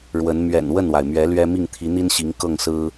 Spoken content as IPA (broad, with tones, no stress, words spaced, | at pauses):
ɻwə˨˦n mɥɛ̰˨˩n wə˥˨nwa˩ɪ̯mɥɛ˨˦ lɥɛ˦mi˥˨ŋ t̪ʰi˨˦n̪i˦nɕi˨˦ŋ kɤ˥˨ŋsɹ̩˦